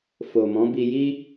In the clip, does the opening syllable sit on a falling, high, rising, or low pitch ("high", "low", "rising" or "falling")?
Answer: low